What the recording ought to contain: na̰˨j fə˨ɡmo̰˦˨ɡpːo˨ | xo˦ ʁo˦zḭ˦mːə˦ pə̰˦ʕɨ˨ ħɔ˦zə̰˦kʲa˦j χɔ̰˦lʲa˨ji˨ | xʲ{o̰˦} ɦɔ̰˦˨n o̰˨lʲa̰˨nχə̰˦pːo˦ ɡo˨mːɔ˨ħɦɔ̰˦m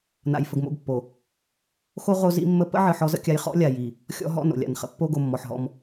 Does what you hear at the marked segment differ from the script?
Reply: yes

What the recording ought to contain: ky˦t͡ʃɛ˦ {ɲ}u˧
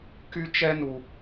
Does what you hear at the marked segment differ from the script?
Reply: yes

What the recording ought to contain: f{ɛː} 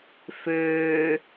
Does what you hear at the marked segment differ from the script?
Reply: yes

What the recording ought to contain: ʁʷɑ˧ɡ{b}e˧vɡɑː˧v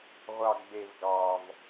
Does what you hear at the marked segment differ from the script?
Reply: no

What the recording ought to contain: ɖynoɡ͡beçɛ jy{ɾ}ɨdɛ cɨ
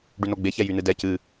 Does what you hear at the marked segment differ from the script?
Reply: yes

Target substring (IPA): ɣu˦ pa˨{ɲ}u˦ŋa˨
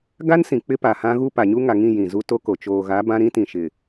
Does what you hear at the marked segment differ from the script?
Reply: no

